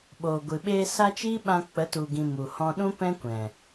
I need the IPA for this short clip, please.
ɓ oː˨ ɡʷ ɨ˨ ɓ eː˧ s a˦ t͡ʃ iː˦ ɓ ã˧ k͡p ə˨˦ t u˨ ɡ ĩ˨ m u˨ h ɔ̃˧ ɗ ũ˦ p ɛ̃˦ kʷ ɛ̃˨

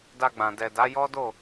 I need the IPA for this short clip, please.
d a˧ ɡ͡b ã˨ d ɛ˨ d a˨˦ j ɔ˦ d o˦˨

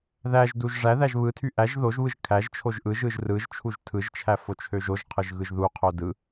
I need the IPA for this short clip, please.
ð æ ʒ d u ʒ ʐ æ ð æ ʒ β ɯ tʰ y ʔ æ ʒ ð o ʒ β ɯ ʒ kʰ æ ʒ t͡ʃʰ o ʒ ʔ ɯ ʒ ɯ ʒ r ɯ ʒ t͡ʃʰ u ʒ tʰ ɯ ʒ t͡ʃʰ æ f o t͡ʃʰ ø ʒ o ʒ qʰ ɯ ʒ ɣ ɯ ʒ ð u qʰ o d ɯ

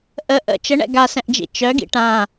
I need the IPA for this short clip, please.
ʔ ə ʔ ə̰ t͡ʃ ə ɳ ɛ̰ ɡ a s ɛ̃ ʔ d͡ʒ ḭ t͡ʃ œ ɡ ḭ ʈ ã

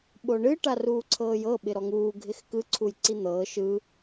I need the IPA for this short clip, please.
ɓ o ɳ ɨ ʈ a r uː ǀʰ ɤː j ɤ ɓ ɪ ɾ ɔ ŋ uː ɡʱ ɪ x k ɯ ǀʰ u j ǀ i n̪ ɤː ʃ ɯ

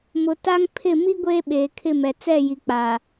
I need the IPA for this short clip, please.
m ʊ˨ t a˦ ŋ pʰ ɪ˦˨ m i˦ ɡʷ eː˦ ɓ eː˨ kʰ ɪ˦˨ m ɛ˨ t͡s ɛ˦˨ j i˨ k͡p aː˨

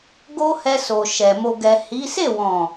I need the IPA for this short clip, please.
ɡ o˧ h ɛ˧ s o˨ ʃ ɛ˨ m o˨ ɡ ɛ˨ h i˨˦ s e˦˨ w ɔ̃˨

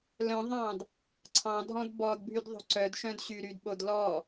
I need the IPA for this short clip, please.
l œ̃ ðˤ ɑ̃ d | ǀʰ ɑ̃ dʱ ɔ̃ d b ɔ d bʱ y d ðˤ o̤ ǀ œ d ʃ œ̃ d ɕ y ɾ y d ɓ o d l ɔ

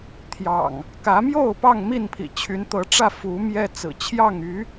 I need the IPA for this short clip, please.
t̪ʰ j ɑ̰˨˩ ŋ | k ä˨˦ m j o˥˨ ʊ̯ p ɑ˥˨ ŋ m i˥˨ n pʰ ḭ˨˩ t͡ɕʰ y˨˦ n t̪ ɤ˨˦ ʈ͡ʂ ä˥˨ f u˨˦ m j ɛ˦ t͡s ɹ̩˨˩ t͡ɕʰ j ɑ˥˨ ŋ y˨˦

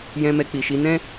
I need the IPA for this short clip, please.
j ɛ̃˧ m ɛ˧ k͡p i˨ ʃ i˨˦ n ɛ̃˦

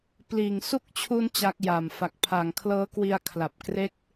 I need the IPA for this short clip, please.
p l iː˨˩ ŋ s u˦˥ k̚ t͡ɕʰ u˧ n t͡ɕ a˦˥ k̚ j a˨˩ m f a˨˩ k̚ pʰ aː˨˩ ŋ kʰ l ɤː˦˥ k w i˧ a̯ kʰ l a˨˩ p̚ k r e˥˩ k̚

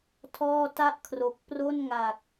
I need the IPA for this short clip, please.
tʰ ɔː˥˩ t a˥˩ ʔ kʰ r o˨˩ k̚ p r o˥˩ n ŋ a˨˩ k̚

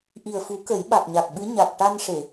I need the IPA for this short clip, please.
ʔ i˨˩ ə̯ f u˨˩˦ k ə˨˩˦ j ɓ a˨˩ k̚ ɲ a˨˩ k̚ ɓ ɨ˧˥ ɲ a˨˩ k̚ ʈ a˧ n ʂ e˨˩˨

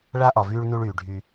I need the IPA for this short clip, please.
ɭ a˦ ʔ ɒ˨ v yː˦ ɭ n u˦ ɭ yː˨ ɖʱ y˦

